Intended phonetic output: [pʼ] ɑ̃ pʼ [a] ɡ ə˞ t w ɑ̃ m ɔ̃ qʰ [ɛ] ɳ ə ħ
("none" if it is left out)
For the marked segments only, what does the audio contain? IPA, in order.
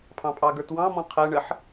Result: pʰ, ɑ, ɛ

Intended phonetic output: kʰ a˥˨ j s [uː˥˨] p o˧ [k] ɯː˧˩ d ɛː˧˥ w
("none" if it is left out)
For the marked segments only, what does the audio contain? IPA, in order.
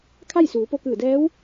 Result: uː˩˧, k

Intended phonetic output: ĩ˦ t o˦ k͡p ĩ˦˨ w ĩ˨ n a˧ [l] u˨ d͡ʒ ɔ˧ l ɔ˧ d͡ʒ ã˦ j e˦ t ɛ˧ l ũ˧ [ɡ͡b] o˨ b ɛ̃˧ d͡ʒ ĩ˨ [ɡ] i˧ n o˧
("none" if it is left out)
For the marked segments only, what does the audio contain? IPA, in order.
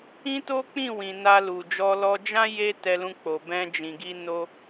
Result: l, k͡p, ɡ

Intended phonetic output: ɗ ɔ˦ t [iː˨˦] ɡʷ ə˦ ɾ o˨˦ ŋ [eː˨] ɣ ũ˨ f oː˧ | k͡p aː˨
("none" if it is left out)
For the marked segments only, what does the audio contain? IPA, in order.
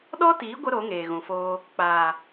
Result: iː˨˦, eː˨

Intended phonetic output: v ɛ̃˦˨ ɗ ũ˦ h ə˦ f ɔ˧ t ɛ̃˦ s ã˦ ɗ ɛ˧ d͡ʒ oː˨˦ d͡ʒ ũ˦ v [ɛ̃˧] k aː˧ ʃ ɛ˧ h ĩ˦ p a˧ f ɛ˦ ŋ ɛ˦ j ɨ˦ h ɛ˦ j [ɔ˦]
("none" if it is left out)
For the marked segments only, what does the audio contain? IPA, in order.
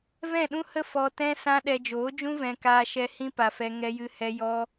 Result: ɛ̃˧, ɔ˦

